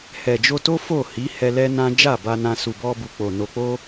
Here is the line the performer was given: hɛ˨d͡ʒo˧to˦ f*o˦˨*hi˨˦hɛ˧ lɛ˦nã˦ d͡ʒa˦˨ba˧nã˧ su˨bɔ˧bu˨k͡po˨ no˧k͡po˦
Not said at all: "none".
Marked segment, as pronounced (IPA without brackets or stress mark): o˦˨